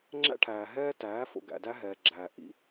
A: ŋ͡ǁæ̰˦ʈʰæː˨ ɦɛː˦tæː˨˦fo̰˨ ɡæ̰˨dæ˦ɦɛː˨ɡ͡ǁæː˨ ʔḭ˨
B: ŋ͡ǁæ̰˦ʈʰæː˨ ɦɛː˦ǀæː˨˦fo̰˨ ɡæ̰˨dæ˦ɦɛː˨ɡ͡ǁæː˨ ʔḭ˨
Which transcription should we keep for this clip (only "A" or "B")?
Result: A